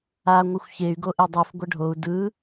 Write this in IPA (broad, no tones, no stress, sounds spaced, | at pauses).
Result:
a ŋʷ ɯ xʷ ç e y̯ ɡ o ʔ e dˤ ɯ f ɡʷ ɐ ɖʱ o u̯ d ɯ